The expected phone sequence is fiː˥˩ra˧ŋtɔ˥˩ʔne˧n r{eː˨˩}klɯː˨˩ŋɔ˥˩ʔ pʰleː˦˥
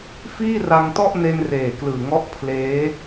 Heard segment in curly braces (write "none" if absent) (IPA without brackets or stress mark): eː˨˩